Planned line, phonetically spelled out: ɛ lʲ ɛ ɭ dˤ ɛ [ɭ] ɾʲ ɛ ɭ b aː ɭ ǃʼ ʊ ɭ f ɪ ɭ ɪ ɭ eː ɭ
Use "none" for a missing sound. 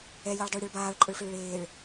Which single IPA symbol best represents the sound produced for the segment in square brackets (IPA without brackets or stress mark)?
ɭ